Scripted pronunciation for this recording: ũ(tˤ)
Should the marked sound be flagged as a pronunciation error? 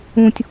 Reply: yes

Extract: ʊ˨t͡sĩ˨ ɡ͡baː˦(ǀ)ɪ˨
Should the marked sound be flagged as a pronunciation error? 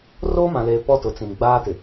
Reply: yes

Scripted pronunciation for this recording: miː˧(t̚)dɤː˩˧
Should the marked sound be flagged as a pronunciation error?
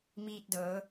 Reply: no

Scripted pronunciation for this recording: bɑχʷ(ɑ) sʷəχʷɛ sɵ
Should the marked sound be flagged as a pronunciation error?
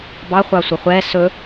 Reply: no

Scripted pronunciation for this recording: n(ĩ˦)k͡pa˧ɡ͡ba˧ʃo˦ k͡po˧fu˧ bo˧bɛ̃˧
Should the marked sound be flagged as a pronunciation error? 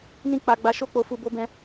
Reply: no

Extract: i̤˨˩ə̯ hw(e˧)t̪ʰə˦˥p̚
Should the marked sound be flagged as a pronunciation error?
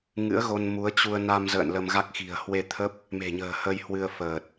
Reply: no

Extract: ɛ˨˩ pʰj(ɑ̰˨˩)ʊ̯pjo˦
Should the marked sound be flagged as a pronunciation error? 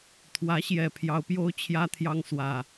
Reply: yes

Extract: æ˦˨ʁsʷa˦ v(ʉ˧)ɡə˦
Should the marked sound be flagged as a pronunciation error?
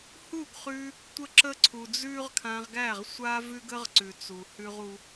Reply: yes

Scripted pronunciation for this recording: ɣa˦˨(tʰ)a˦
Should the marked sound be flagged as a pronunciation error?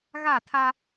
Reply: no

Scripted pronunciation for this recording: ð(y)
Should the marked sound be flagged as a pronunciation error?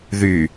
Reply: no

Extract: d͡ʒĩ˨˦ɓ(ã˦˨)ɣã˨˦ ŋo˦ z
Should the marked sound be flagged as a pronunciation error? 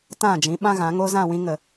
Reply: yes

